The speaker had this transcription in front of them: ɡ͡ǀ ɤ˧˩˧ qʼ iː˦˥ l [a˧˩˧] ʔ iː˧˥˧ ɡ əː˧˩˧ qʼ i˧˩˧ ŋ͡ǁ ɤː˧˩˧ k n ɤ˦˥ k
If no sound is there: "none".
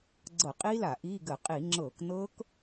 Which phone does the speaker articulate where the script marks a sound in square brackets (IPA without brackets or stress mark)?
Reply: a˧˩˧